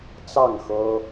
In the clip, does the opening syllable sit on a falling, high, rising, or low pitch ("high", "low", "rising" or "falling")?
falling